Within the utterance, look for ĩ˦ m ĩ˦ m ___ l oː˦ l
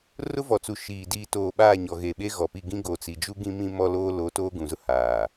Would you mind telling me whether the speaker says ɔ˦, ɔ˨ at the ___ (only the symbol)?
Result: ɔ˦